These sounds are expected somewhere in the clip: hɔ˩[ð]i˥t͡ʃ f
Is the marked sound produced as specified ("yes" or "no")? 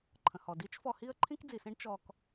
no